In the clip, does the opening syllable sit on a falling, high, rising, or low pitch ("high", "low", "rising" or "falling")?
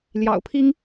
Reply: low